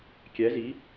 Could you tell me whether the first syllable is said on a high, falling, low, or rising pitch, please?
rising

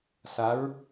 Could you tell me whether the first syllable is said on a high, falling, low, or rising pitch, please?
rising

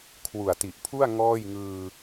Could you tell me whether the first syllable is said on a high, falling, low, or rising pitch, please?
low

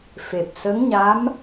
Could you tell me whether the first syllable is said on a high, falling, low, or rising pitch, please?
low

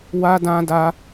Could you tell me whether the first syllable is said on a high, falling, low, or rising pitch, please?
high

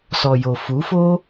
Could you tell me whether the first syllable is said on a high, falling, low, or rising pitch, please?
low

